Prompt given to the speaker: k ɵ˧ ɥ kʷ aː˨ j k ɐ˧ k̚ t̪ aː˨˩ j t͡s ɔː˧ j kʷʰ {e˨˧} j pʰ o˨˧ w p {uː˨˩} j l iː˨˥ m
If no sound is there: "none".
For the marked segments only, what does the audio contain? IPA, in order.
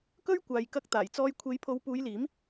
e˨˧, uː˨˧

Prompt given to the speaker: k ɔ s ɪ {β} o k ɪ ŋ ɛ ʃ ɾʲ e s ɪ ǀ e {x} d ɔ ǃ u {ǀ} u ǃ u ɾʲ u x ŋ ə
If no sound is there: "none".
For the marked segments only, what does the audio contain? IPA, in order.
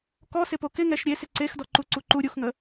p, x, ǀ

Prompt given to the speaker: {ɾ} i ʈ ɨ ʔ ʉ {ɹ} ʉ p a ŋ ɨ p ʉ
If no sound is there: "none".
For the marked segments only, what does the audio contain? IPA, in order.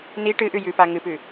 n, j

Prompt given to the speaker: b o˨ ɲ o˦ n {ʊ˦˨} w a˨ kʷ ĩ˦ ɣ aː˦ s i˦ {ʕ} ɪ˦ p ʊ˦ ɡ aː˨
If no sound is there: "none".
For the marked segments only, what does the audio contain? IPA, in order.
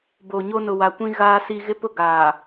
ʊ˨, ɣ

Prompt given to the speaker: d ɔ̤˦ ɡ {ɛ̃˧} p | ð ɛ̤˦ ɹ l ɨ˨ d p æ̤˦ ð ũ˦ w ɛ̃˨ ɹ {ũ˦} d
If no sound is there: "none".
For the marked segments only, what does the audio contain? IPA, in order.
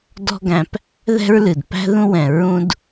æ̃˧, ũ˦

